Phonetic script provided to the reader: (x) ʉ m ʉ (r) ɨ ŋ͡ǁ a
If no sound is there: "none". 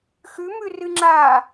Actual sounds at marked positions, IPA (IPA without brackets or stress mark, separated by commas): x, r